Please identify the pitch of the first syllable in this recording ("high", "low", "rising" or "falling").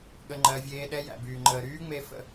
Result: high